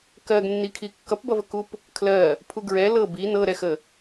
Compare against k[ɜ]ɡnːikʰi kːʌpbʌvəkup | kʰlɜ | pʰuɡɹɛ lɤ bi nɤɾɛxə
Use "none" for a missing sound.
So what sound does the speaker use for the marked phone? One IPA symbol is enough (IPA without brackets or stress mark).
ɜ